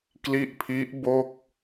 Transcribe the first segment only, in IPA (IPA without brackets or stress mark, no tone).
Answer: k